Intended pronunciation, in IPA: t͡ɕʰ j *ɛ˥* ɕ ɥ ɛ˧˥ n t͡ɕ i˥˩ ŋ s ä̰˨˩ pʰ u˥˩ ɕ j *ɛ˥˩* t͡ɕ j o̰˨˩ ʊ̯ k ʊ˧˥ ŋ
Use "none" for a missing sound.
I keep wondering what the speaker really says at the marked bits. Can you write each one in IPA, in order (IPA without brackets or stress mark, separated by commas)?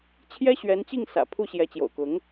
ɛ˥, ɛ˧˥